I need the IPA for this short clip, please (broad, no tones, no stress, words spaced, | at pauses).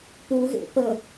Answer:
puɣḛ pə